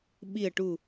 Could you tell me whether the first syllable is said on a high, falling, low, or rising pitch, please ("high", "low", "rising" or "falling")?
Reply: low